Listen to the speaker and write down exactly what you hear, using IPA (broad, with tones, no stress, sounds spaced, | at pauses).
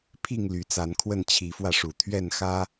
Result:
pʰ i˥˨ ŋ l y˨˦ t͡s a˨˦ n kʰ w ə˥˨ n t͡ɕʰ i˨˦ f w ä˧ ʂ u˨˩ t̪ʰ ɥ ɛ˥˨ n x ä˦